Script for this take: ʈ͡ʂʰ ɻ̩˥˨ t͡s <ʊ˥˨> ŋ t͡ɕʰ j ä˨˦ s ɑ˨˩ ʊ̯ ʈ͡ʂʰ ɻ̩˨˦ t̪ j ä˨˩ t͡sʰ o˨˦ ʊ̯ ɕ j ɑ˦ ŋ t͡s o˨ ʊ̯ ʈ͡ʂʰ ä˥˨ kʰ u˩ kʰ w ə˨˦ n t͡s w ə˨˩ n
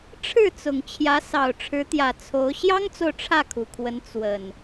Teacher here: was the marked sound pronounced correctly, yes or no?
no